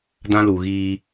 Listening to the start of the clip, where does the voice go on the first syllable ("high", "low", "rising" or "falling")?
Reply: high